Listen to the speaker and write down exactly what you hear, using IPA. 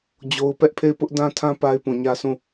d͡ʑ o˦ ʊ̯ p ɛ˦ ʔ pʰ e˦˨ ɪ̯ p ʊ˦ ʔ d ã˦ tʰ ã˦ p a˦ ɪ̯ p ũ˨ ɲ ä˦ s ũ˦˨

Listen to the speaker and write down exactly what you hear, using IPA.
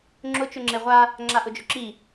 ŋ͡ǁ ʊ t͡ʃ ʊ ŋ͡ǁ e ʁʷ a | ŋ͡ǁ a ʔ ʊ d͡ʒ ʊ ǁ i

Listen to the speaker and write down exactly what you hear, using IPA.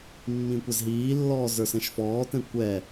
mː ĩ kʷ ɛ z ɦ iː lː ɔː z ə˞ s ɛ̃ ʃ f ɔː t ɛ̃ kʷ ɛ

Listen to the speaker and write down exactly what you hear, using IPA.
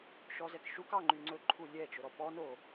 ʃ ɔ z ɛ k ʃ u k ɑ ŋ͡ǃ y ŋ͡ǀ ɵ ǃʰ u lʲ ɛ t͡ʃ ɵ ɾ ɔ p ɔ n o

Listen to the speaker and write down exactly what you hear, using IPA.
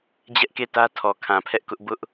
d͡ʑ ɛ˦ ʔ k e˦˨ t ä˦ tʰ ɔ˨ kʰ ã˨ pʰ ɛ˦ ʔ k ʊ˦ ʔ b ʊ˦ ʔ

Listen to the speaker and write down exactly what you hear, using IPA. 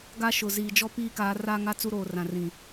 ɡ a˦ ʃ ʊ˨ z iː˨ d͡ʒ ɔ˦ p iː˦ k aː˨˦ r aː˦ ŋ a˦ t͡s u˦ ɾ oː˨ r ã˨ r ĩ˨

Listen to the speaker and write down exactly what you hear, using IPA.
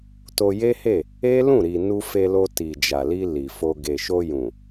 t o˧ j e˦ h e˦˨ | e˦ l ũ˦˨ ɾ i˨ n u˧ f e˧ l o˧ t i˨ d͡ʒ a˨ l i˧ l i˨ f o˧ ɡ e˨ ʃ o˧ j ũ˨

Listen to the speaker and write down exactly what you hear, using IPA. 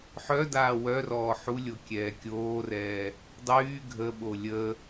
ħ œ d aː w œ r ɔː ħ u lʲ o kʲ ɛː kʲ oː r ɛː | dˤ yː ɡʱ ə ɓ o lʲ ə

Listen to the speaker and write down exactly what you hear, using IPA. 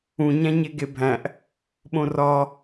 ũ ɲ æ̃ ɲ e ɡ e bʱ æ̃ ʔ | ɓ õ r ɒ

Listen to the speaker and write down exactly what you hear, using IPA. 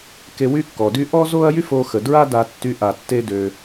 k e˧ w y˥ kː ɔ˩ d y˥ ʔ ɔ˥ z o˥ ɐ̯ j y˥ f o˧ x ə˩ d ɹ a˥ d a˧ tː y˧ ʔ a˩ tː e˧ d ø˩

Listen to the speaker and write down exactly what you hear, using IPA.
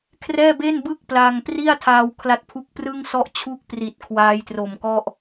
kʰ r ɛː˥˩ b e˥˩ n b ɯ˥˩ k̚ p l a˧ ŋ p r i˥˩ a̯ tʰ aː˧ w kʰ l a˦˥ t̚ pʰ u˦˥ k̚ p r ɯ˥˩ ŋ s ɔ˥˩ ʔ t͡ɕʰ u˥˩ k̚ p r i˨˩ t̚ kʰ w aː˦˥ j t r o˨˩ m k ɔ˥˩ ʔ

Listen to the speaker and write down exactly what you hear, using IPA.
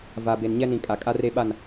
v a˨ b e˨ n ɲ ɛ˦ n ĩ˨ kʼ a˨ kʼ a˦ r e˦ ɓ a˦˨ n

